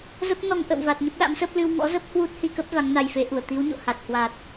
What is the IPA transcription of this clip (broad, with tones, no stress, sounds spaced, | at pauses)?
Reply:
z ə˦˥ p̚ n ɔ˧ ŋ ʔ ə̰˧˨ w v a˨˩ t̚ ɲ ə˦˥ p̚ ɗ a̰˧˥ m s ə˦˥ p̚ l ɨ˧ w ŋ ɔ̰˧˥ z ə˦˥ p̚ h w u˦˥ t̚ h i˧ k ə˦˥ p̚ v a˨˦ ŋ n a˧ j f e˨˦ ʔ u˧˩ ə̯ t̪ i˨˦ w ɲ o̰˧˨ h a˨˩ t̚ h w a˨˩ t̚